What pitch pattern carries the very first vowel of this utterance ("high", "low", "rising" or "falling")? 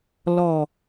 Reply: low